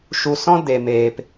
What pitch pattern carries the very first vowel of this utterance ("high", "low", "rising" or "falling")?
low